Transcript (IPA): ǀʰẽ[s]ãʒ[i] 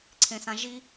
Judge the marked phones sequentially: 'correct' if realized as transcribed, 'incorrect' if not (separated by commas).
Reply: correct, correct